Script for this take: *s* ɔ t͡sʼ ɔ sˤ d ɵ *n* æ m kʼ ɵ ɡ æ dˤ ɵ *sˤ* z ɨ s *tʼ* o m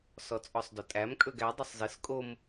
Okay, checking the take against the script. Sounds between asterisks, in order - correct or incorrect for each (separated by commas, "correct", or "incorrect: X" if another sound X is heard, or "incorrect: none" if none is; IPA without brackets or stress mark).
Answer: correct, incorrect: tʼ, correct, incorrect: kʼ